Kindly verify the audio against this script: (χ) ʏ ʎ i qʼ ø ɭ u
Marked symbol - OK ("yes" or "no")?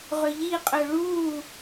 no